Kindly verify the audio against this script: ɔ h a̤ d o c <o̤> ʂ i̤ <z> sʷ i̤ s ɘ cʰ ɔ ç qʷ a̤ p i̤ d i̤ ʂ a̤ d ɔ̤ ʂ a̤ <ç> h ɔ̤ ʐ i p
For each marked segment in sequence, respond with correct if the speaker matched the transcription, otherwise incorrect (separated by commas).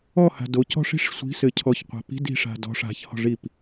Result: incorrect, incorrect, correct